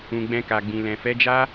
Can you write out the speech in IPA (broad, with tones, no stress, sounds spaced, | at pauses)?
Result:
ũ˨ ɡ͡b ɛ̃˧ k a˨ ɡ͡b ĩ˨ l ɛ̃˨ f ɛ˨˦ d͡ʒ a˦